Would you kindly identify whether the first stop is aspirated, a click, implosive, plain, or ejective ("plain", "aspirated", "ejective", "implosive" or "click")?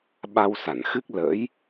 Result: implosive